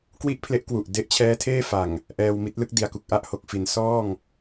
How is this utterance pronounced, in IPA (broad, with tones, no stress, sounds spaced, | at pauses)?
k w i˥˩ ʔ pʰ l e˦˥ ʔ k w u˨˩ ʔ d e˦˥ ʔ t͡ɕʰ ɛː˦˥ tʰ eː˥˩ f a˨˩ ŋ | ʔ ɛː˧ w m i˦˥ t̚ l ɯ˦˥ k̚ d i˩˦ a̯ k u˨˩ k̚ ʔ a˥˩ ʔ h o˨˩ k̚ f i˩˦ n s ɔː˥˩ ŋ